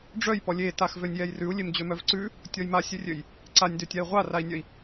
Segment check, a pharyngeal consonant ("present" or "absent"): absent